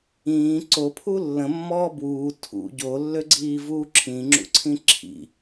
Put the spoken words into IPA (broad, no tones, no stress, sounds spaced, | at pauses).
ĩː ǀ o pʰ u lː ə̃ mː ɔː b w uː tʰ ṵ ɟ o lː ø ɡ͡ǀ iː v uː ǁʰ ĩ ŋ͡ǁ ṵ ǀʰ ĩ ǁʰ ḭ